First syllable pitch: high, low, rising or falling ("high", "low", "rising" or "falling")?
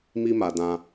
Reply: high